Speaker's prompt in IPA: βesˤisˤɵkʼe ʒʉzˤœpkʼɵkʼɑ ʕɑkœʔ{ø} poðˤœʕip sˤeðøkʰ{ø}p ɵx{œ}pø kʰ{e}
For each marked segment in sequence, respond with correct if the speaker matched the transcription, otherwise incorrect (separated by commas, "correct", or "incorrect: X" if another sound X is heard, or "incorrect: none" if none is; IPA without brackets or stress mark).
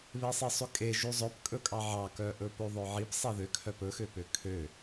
incorrect: ɵ, incorrect: œ, incorrect: ø, incorrect: ø